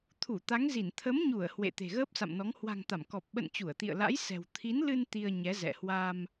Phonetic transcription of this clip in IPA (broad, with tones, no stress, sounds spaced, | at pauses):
t̪ʰ u˧˩ t̪ a˨˦ ŋ z i˧˩ n t̪ʰ ə˨˦ m ɲ u˧˩ ə̯ h w ḛ˧˨ t̪ e̤˨˩ ɣ əː˦˥ p̚ s a̰˧˨ m n ɔ˨˦ ŋ h w a̤˨˩ ŋ t̪ a˧˩ m k ɔ˨˩ p̚ ɓ ə̰˧˨ n t͡ɕ u˧˩ ə̯ t̪ ḭ˧˨ ə̯ l a̰˧˥ j s ɛ̤˨˩ w t̪ʰ i˨˦ n l ɨ˧ n t̪ i˧ ə̯ ɲ ɛ˨˦ z ɛ̰˧˨ h w a˧ m